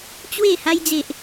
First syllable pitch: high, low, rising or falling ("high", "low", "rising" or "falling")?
falling